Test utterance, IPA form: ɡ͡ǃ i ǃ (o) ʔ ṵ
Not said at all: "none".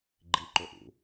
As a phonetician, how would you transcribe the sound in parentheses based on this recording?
o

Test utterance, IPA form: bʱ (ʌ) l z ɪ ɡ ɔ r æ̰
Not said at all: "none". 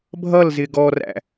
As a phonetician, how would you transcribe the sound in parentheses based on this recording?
ʌ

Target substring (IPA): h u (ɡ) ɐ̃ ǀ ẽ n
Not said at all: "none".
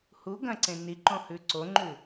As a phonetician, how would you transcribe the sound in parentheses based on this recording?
ɡ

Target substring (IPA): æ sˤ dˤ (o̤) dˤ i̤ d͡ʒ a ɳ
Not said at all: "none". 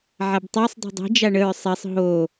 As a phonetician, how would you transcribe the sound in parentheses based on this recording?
o̤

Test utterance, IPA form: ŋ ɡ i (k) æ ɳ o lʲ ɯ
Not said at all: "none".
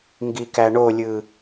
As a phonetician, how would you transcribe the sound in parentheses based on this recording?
k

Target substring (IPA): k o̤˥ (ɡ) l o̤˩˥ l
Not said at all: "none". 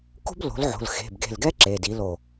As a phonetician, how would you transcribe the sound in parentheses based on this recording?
b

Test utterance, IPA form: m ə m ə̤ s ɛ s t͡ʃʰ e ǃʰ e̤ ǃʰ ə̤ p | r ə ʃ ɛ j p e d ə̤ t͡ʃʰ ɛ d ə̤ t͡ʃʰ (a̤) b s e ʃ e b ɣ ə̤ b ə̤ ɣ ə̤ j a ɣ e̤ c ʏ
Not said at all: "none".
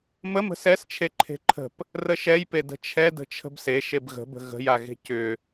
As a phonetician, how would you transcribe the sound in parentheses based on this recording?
ə̤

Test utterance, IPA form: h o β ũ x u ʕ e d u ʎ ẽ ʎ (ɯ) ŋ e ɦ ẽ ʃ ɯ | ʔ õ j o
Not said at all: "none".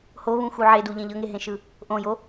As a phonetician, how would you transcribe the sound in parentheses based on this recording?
ɤ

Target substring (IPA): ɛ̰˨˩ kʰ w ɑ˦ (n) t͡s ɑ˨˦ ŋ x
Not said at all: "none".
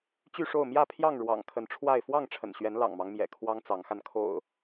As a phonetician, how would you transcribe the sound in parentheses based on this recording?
ŋ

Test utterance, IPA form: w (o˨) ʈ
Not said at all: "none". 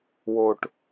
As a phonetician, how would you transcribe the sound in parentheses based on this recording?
o˨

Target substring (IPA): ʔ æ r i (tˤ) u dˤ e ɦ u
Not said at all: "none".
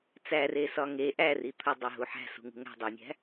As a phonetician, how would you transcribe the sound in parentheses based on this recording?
t̪ʰ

